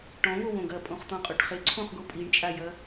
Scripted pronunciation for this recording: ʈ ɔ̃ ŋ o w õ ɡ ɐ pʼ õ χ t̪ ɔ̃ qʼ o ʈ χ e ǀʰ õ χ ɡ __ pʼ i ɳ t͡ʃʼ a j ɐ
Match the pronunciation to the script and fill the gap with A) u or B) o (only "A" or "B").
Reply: B